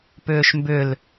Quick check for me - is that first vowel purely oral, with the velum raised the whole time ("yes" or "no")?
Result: yes